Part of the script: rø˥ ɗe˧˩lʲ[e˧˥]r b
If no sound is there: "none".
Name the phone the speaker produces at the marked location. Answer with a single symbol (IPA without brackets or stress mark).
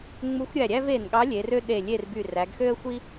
e˥˨